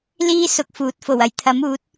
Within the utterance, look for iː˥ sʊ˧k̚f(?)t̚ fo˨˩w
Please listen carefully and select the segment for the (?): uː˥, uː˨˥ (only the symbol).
uː˨˥